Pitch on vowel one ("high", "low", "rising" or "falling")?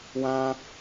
high